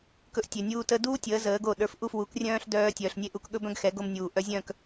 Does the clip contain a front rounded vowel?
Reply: yes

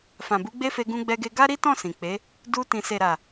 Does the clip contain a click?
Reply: no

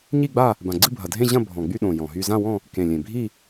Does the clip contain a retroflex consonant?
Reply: no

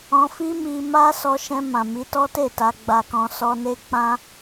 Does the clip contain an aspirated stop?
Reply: no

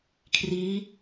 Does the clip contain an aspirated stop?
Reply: yes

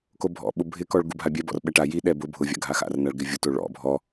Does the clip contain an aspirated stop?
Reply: no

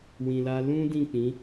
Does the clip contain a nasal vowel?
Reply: yes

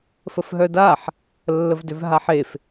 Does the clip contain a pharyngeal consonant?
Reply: yes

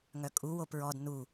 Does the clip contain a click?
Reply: no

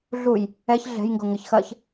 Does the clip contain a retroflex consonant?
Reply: no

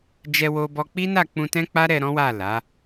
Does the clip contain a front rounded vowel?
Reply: no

